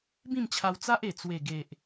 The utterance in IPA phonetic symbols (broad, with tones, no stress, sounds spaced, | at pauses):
b ĩ˥˧ m t͡ɕʰ a˧ w t͡s a˦ ʔ e˨˩ t͡s w e˨˩ ɡ e˨ ʔ